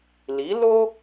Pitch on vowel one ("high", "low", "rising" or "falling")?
rising